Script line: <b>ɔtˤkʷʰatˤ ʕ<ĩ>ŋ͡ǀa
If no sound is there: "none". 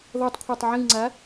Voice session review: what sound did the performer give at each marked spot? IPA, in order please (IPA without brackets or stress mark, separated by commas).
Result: ð, ĩ